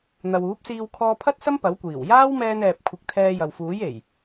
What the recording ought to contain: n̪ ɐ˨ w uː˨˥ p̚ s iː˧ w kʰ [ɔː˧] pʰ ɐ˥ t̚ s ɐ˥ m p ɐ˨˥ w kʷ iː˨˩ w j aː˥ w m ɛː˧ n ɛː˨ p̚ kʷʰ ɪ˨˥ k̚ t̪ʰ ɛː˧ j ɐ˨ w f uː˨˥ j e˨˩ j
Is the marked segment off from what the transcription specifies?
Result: no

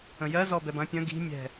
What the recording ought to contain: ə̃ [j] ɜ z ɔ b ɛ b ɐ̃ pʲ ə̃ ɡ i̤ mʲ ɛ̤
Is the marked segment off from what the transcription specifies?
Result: no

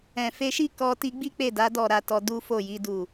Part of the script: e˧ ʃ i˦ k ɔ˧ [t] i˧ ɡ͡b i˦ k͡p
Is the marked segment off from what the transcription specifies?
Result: no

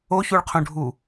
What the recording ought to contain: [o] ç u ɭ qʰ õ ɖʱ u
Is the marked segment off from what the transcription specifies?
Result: no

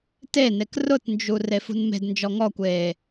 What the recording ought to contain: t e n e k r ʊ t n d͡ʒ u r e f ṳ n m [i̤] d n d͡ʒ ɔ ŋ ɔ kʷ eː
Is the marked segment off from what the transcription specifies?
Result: yes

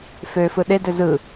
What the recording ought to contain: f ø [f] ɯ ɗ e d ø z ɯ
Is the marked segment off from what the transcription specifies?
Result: no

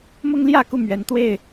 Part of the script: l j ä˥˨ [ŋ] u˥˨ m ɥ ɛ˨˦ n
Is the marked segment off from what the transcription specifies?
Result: yes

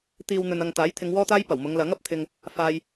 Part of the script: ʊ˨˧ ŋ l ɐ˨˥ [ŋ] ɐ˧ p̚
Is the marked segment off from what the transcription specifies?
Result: no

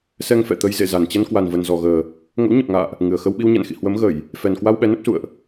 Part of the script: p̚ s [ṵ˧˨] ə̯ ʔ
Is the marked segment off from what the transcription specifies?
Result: no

